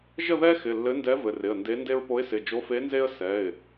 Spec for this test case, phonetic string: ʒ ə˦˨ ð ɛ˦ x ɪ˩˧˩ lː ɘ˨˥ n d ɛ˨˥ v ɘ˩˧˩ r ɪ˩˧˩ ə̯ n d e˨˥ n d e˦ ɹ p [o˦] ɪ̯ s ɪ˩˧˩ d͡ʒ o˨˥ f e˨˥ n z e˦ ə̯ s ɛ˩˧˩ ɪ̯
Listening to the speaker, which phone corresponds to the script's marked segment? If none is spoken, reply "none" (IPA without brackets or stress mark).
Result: o˨˥